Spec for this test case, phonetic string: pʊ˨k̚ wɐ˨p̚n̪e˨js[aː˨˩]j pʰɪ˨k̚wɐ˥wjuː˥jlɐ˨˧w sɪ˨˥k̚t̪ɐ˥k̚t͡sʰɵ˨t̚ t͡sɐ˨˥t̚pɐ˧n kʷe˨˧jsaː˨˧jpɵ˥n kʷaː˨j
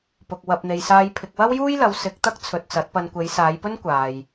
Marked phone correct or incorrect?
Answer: incorrect